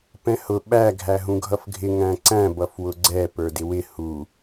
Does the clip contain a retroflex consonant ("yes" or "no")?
no